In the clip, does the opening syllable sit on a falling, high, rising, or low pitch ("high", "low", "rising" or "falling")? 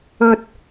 high